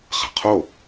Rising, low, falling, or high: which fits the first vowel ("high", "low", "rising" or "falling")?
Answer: low